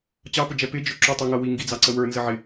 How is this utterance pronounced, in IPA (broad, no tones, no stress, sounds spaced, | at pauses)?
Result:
t͡ɕ ɑ p ʊ d͡ʒ ɛ p ɪ d͡ʒ ʊ ǁ u tˤ ʊ ŋ ʌ w i ŋ ɡ i d͡z ɑ ǀ ə w ə˞ n z ə ʕ ɪ